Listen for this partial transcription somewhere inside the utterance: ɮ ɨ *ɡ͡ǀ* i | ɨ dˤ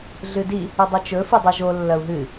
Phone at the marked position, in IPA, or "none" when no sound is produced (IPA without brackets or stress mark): d